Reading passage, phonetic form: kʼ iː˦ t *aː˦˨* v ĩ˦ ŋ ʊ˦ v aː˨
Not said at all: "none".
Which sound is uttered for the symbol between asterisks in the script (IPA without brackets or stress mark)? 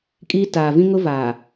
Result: aː˨